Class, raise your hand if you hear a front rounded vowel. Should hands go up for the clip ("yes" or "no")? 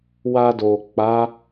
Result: no